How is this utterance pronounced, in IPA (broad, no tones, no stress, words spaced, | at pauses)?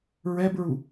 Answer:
ɹɛbɹu